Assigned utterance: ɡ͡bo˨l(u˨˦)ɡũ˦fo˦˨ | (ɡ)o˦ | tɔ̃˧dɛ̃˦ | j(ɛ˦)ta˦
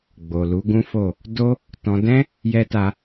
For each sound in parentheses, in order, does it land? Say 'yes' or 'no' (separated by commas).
yes, no, yes